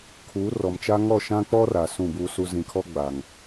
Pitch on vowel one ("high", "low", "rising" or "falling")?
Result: rising